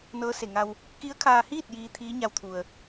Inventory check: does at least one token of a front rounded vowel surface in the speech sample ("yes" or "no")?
no